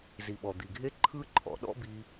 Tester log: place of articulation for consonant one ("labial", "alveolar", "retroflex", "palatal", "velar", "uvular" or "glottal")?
alveolar